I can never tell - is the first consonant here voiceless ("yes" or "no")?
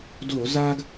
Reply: no